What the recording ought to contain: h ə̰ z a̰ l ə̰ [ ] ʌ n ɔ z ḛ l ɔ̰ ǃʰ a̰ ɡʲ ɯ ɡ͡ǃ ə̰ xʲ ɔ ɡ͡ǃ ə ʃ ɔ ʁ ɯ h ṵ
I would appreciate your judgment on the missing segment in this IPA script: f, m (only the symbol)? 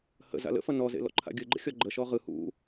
f